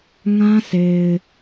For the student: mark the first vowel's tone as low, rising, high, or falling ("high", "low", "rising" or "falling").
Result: high